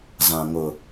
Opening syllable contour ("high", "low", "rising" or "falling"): low